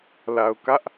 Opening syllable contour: low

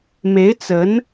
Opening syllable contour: rising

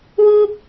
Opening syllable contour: high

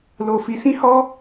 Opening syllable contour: low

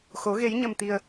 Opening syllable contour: rising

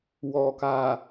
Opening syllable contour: low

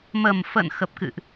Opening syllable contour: low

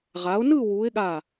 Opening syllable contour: rising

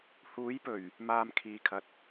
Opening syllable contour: rising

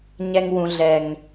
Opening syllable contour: high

